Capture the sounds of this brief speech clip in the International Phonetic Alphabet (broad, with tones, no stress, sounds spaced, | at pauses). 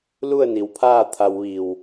l u˥˨ ə̯ n i˩˧ w pʰ aː˥˨ t̪ʰ a˧ w ʋ i˧˩ w